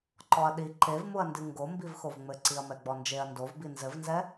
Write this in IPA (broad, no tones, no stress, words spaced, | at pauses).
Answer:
ǃɔɐ̯ɗi ǃevmuɐ̯ndɨ ŋɡo mbivxovŋ͡mɘ ǀiɐ̯mɛɡ͡bɔnd͡ʒeɐ̯ ndovbi nzɘvnzɛ